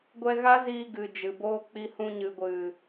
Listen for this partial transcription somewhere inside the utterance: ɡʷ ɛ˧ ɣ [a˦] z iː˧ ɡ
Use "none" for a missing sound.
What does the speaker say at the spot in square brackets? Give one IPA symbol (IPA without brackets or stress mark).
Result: a˦